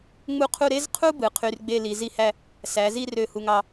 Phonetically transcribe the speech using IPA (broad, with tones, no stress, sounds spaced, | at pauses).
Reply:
ŋ͡m u˥˧ qʰ u˥˧ ɾ e˥ z qʰ u˥ b ɯ˩˧ qʰ y˧ r ɡ͡b e˥˧ l i˩˧ z i˥˧ h æ˥˧ | s æ˩˧ z i˥˧ r ø˧˩ h u˧ ŋ ɑ˧